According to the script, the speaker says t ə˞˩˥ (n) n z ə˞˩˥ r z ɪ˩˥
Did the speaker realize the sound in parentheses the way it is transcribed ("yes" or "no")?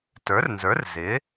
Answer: no